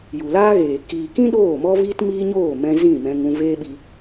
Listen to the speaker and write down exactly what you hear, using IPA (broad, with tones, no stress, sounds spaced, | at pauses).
j u˨ l aː˦ ɣ eː˨ k iː˨ k ĩ˦ ɗ oː˦˨ m ɔ˦ v iː˦ t m iː˦ ɲ oː˦˨ m ɛ̃˧ z ĩ˦˨ m ɛ̃˧ ŋ ũ˧ v eː˦ ɓ i˧